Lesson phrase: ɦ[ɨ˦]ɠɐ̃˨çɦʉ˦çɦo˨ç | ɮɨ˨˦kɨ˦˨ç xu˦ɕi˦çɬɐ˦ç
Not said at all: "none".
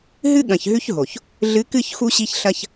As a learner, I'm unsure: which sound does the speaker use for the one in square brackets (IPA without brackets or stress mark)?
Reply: ɨ˦